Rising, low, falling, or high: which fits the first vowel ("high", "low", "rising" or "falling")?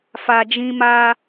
low